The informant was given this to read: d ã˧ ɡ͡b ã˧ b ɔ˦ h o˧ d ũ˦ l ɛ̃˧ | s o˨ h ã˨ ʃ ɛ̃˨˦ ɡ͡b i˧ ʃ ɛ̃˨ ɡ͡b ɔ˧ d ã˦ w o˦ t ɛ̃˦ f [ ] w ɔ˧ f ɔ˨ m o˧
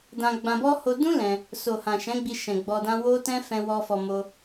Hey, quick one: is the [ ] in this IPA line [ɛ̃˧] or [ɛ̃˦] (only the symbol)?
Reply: ɛ̃˧